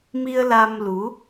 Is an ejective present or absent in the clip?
absent